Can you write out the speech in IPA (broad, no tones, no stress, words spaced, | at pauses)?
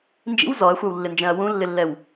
nd͡ʒḭw zɔɐ̯xʷɑwlːɪnd͡ʒɛ̃ɐ̯ wũlːɪlːɛw